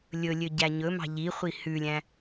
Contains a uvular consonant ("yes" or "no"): yes